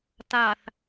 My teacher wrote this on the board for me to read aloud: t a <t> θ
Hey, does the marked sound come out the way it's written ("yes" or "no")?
no